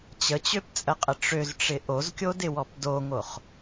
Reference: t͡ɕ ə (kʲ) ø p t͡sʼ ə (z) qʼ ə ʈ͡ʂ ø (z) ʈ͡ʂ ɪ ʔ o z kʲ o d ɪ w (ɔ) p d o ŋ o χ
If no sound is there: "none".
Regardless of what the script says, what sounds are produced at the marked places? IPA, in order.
t͡ɕ, none, z, ɔ

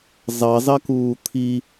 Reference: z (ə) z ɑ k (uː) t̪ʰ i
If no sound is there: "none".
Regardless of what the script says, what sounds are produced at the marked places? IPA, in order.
ɑ, uː

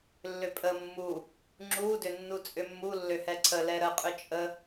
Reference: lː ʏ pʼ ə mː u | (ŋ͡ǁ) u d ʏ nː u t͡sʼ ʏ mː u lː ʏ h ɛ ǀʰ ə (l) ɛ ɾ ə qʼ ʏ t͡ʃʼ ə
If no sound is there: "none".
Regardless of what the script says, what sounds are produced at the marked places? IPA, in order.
ŋ͡ǁ, l

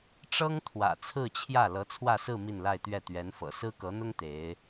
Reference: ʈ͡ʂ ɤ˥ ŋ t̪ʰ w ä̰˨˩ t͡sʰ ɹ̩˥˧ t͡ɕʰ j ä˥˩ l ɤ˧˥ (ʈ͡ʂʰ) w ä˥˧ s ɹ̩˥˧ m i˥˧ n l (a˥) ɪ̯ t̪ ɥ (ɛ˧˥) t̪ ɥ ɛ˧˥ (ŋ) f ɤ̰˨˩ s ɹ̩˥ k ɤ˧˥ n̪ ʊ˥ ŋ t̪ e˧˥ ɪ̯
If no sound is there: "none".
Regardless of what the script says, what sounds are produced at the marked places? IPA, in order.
t͡sʰ, a˥˧, ɛ˥˩, n

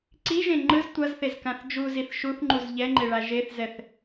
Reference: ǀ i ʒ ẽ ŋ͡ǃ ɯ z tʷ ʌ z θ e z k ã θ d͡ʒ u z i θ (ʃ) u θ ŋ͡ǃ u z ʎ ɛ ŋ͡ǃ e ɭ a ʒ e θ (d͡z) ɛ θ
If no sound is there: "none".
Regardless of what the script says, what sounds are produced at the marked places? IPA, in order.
ʃ, z

